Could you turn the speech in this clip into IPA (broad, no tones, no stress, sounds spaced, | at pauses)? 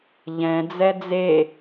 ʎ ɛ̃ d͡z ɛ d͡z e